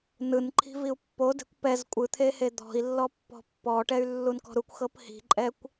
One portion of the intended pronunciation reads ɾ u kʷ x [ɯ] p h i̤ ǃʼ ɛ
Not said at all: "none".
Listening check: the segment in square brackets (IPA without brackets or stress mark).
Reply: ɤ